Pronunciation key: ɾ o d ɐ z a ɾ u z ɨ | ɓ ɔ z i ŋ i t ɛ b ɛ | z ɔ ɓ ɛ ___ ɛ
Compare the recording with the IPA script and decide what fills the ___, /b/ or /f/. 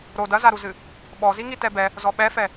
f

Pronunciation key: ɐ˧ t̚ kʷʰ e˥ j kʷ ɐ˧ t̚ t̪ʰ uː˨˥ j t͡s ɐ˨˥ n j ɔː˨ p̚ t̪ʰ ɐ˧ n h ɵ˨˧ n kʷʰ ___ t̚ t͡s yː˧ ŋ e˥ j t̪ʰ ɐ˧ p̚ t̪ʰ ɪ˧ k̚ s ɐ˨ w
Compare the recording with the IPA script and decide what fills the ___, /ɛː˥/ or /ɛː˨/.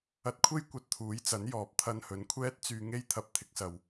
ɛː˥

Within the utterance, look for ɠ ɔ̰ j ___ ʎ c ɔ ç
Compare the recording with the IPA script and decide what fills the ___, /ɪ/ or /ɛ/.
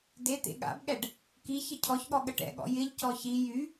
ɪ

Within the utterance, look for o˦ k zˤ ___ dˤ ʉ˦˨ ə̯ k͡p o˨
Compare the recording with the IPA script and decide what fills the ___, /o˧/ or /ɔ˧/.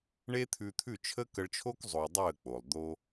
o˧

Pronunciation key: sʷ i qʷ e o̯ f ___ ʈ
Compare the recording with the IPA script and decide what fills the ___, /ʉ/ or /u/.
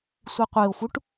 u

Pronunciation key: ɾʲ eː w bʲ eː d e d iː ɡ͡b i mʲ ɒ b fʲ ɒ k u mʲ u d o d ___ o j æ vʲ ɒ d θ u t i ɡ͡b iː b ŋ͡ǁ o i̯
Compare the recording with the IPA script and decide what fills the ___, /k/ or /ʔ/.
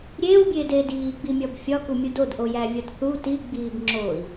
ʔ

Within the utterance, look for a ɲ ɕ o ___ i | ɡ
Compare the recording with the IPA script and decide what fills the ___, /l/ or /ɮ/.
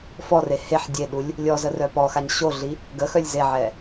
ɮ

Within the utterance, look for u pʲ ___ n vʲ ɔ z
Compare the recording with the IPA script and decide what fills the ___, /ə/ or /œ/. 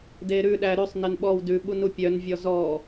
œ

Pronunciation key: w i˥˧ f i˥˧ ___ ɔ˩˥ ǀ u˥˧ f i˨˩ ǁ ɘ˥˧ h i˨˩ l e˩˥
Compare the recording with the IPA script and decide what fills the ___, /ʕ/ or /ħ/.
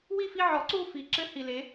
ʕ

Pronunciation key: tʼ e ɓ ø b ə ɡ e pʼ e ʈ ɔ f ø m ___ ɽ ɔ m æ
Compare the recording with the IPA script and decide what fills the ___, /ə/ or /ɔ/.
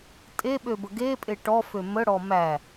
ə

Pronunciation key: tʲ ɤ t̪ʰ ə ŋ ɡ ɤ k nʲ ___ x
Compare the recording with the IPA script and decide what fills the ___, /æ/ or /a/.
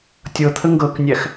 æ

